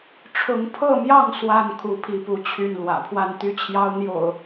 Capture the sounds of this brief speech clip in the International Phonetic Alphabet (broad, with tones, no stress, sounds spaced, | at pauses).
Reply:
ʈ͡ʂʰ ʊ˨˦ ŋ pʰ ɤ˥˨ m j ɑ˥˨ ŋ s w a˥˨ n kʰ u˥˨ pʰ i˥˨ p u˥˨ t͡ɕʰ y˥˨ n l w ä̰˨˩ pʰ w a˥˨ n t̪ y˦ t͡ɕʰ j ɑ˦ ʊ̯ n̪ j o̰˨˩ ʊ̯